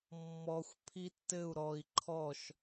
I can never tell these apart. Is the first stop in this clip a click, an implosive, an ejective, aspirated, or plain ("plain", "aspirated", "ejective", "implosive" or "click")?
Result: aspirated